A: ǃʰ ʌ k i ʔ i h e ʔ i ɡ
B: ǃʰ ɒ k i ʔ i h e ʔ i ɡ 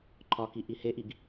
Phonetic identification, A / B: B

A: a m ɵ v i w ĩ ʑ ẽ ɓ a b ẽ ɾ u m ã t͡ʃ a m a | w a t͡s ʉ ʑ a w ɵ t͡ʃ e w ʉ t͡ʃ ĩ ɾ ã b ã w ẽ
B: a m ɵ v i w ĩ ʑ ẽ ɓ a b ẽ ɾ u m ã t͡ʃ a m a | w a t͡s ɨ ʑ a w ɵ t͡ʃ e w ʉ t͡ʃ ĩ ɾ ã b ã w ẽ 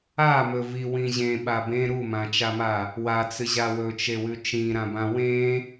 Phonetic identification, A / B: B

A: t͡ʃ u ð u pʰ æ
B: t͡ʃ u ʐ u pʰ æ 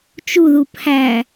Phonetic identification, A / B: A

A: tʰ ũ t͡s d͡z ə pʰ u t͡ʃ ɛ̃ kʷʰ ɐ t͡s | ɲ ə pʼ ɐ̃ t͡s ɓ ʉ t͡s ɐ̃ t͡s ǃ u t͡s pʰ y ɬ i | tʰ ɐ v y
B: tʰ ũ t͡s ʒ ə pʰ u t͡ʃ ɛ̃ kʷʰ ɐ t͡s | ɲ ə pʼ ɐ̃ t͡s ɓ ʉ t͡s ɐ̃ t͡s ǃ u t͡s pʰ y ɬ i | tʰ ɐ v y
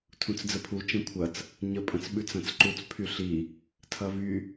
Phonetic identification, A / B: A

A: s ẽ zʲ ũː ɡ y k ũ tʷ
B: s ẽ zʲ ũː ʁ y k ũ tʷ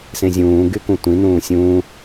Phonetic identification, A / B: A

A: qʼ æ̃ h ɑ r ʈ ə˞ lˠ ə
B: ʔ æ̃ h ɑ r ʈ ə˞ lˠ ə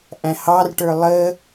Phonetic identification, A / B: B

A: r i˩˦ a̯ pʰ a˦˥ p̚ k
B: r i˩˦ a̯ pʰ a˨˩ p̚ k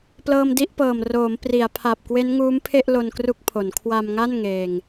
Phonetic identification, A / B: B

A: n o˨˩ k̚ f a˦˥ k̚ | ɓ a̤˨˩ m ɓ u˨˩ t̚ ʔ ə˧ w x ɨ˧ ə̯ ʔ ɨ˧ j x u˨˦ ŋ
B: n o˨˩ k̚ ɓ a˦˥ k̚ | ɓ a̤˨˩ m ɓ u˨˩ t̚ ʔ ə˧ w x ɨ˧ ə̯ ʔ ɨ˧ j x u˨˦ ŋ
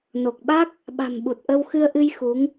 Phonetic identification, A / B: B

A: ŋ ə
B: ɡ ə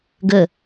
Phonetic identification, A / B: B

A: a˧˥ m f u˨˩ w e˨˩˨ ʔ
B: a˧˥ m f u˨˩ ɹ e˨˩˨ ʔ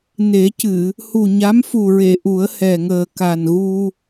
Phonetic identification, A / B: B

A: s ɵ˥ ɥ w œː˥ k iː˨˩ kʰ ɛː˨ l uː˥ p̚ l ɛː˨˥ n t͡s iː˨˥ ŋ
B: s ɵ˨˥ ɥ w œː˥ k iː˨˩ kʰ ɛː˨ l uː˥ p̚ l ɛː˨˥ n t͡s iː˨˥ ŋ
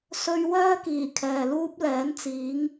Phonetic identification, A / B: A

